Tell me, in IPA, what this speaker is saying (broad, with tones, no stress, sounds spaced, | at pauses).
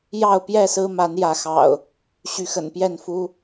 j ɑ˥˨ ʊ̯ p j ɛ˥˨ s ɹ̩˦ m a˨˦ n j ä˨˦ x ɑ̰˨˩ ʊ̯ | ɕ y˨˦ x ə̰˨˩ n p j ɛ˥˨ n f u˦